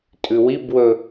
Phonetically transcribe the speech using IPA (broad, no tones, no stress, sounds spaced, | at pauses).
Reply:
tʼ ʉ w i b w ɵ